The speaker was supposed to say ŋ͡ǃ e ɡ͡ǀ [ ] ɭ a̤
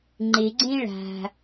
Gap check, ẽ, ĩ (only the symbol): ẽ